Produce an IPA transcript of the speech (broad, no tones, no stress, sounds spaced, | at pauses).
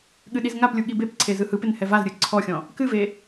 ɠ ɨ ɗ i z ŋ a p lʲ u ɠ i b e p ǀʰ e z ɯ h ɯ p ɪ n h ɛ v a z ɾʲ ɯ ǀʰ ɔ xʲ ɔ̃ | k ɨ v e